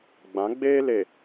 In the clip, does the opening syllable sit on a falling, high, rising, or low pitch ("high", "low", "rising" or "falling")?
rising